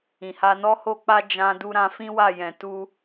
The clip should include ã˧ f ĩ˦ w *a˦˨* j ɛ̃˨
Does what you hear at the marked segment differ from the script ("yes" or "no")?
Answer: no